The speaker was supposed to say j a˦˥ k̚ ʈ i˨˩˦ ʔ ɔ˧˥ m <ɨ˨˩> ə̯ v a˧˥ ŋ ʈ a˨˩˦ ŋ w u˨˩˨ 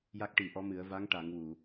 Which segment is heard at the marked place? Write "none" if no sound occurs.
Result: ɨ˨˩˦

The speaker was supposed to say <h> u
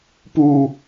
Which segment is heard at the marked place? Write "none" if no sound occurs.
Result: p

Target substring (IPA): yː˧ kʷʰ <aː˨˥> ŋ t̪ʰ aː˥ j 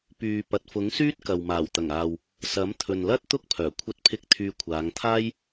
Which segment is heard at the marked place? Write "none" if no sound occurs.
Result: aː˨˧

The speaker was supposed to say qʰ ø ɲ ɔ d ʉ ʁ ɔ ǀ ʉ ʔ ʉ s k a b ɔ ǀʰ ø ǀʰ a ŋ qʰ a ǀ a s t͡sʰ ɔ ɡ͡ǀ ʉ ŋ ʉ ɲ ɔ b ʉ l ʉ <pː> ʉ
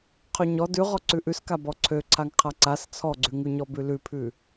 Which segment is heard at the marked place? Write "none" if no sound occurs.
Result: pʰ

